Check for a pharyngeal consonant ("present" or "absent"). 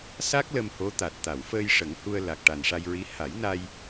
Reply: absent